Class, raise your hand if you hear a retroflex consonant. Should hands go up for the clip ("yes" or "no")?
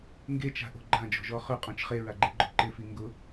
no